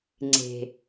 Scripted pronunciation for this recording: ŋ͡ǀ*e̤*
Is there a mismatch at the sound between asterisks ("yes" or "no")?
no